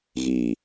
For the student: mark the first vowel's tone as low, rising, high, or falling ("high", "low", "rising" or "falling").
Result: low